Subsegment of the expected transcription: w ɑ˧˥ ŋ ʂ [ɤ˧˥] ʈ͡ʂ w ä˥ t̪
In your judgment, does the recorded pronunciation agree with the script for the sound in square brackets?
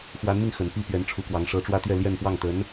yes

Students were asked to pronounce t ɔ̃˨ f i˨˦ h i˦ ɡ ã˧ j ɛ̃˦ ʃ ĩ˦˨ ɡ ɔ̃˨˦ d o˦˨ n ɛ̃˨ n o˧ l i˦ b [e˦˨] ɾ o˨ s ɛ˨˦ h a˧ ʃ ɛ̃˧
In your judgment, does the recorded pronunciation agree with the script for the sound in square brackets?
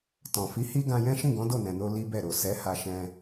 no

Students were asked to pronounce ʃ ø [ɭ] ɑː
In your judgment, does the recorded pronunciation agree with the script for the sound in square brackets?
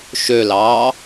no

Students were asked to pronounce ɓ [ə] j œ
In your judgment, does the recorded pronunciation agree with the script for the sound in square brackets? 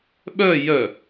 no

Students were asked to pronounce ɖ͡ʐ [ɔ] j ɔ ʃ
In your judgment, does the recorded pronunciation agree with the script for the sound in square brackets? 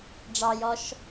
no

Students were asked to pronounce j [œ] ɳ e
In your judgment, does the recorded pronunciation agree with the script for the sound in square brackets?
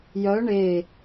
yes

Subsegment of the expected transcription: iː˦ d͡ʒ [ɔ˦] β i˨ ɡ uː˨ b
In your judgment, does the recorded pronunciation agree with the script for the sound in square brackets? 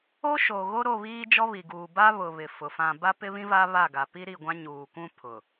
yes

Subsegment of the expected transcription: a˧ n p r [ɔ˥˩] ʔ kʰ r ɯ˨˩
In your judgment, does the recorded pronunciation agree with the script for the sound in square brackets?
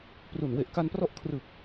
no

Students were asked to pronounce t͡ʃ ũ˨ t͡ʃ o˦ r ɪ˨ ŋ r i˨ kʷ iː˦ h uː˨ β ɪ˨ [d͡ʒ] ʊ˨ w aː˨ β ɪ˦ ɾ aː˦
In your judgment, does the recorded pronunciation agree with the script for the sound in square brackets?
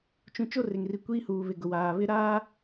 no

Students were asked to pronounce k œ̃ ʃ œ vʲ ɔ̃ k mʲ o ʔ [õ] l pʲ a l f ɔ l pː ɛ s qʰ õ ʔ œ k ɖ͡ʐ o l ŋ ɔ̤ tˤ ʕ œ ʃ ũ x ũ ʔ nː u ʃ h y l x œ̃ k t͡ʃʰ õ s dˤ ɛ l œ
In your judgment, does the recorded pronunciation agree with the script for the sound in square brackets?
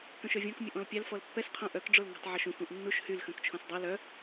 no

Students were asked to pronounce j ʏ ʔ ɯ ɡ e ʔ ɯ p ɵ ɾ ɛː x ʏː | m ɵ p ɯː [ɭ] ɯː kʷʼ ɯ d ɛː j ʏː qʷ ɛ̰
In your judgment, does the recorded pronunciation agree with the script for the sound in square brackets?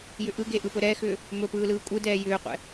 no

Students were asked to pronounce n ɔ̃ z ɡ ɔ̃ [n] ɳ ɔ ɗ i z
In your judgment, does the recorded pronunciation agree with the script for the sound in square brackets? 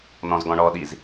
no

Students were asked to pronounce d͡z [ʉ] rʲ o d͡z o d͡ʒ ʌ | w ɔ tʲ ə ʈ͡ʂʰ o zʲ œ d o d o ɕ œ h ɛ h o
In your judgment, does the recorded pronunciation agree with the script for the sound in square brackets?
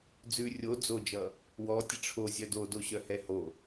yes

